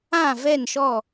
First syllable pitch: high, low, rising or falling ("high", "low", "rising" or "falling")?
falling